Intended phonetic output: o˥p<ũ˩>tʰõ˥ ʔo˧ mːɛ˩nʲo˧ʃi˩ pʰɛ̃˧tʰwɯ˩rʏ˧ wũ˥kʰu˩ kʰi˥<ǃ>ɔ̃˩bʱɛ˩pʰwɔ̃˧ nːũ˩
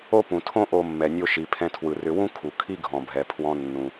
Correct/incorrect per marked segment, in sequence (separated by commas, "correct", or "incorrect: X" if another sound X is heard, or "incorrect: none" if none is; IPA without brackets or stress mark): correct, incorrect: ɡʱ